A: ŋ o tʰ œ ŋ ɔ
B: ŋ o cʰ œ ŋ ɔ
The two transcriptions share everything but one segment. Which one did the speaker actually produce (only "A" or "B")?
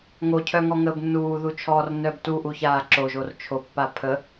B